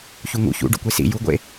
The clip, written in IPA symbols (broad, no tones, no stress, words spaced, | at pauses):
çuŋṵ çṵ ɖṵkʷesḭ juɡʷḛ